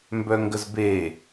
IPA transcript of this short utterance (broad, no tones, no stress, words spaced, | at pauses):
mbœŋɡəzbe